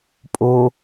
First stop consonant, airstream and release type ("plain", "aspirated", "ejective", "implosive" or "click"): ejective